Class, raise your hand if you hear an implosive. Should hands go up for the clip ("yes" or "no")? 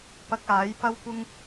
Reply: no